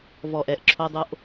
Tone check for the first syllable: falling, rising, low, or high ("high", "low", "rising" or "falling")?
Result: low